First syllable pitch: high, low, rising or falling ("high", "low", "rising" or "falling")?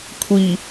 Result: low